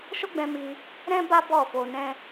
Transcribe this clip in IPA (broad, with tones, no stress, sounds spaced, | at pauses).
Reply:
ʃ o˦ ɡ͡b ɛ̃˧ m i˧ | ɾ ɛ̃˦ b a˦ b ɔ˦˨ f o˧ n ɛ̃˧